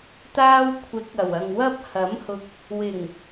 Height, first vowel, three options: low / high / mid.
low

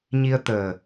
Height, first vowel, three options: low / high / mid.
high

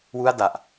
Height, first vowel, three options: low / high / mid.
high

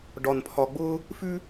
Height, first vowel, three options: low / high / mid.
low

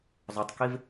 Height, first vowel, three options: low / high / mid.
mid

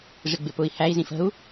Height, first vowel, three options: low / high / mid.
high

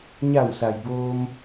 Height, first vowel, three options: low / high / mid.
low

